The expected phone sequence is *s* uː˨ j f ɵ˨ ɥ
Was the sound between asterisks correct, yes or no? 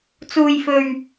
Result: no